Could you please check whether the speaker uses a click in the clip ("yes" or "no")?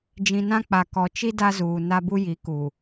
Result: no